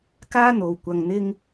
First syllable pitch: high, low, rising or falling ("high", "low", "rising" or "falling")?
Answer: high